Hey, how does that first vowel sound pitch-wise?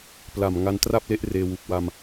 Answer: low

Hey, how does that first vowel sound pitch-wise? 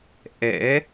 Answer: rising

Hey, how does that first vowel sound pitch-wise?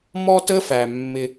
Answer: high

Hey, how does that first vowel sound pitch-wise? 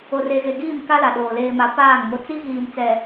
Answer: low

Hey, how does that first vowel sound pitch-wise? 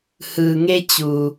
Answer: low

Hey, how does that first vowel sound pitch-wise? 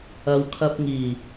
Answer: low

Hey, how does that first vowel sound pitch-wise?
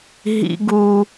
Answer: high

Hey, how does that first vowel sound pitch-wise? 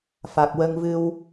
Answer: low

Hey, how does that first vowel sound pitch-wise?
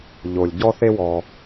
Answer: low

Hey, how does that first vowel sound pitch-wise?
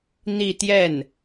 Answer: falling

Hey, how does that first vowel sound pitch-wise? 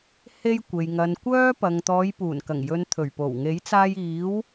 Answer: high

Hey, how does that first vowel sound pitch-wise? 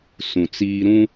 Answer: low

